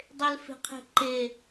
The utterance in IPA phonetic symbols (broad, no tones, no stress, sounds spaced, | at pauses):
dˤ e l f e̤ qʰ e̤ ǃ e